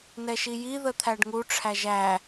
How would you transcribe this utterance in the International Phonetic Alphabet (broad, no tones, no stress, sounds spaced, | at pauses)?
n ɛ ʃ i j i ð ə t̪ʰ æ ɖ ŋ u ʈ͡ʂʰ æ ʒ æ